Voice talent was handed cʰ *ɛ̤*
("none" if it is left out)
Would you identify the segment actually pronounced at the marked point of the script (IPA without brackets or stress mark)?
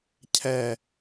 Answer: ɛ